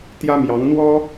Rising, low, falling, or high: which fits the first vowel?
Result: high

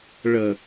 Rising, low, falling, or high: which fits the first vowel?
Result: low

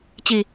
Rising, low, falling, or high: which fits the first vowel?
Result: low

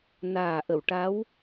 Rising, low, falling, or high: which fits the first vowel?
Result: low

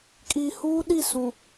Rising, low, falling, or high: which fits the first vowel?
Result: low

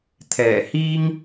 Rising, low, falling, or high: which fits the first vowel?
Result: low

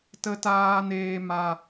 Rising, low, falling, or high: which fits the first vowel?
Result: high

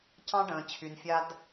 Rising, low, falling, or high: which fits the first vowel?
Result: high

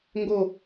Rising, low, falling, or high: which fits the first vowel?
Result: falling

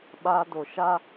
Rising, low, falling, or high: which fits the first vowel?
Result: high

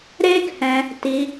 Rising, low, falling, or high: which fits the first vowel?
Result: high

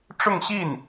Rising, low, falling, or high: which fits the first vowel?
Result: falling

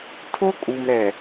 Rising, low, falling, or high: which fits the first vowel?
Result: high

